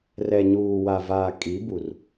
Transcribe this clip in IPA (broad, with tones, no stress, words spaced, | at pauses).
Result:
rɛ˨ɲuː˨wa˨vaː˨ kʼi˨˦bu˨r